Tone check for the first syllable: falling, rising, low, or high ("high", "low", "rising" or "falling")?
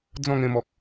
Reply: falling